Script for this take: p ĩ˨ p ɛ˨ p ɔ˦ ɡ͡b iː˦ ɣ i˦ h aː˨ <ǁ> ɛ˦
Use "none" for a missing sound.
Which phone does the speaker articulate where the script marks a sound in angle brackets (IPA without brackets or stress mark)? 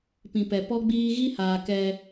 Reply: k